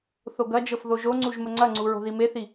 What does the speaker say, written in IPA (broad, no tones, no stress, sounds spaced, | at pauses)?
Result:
θ o ɡ ɐ d͡ʒ ɤ f ð o ʒ o ŋ͡ǀ u ʒ m ə ŋ͡ǀ ɐ ŋ͡ǀ u ɹ o̤ ð i m e θ i